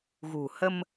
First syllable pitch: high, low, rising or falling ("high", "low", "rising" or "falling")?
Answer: low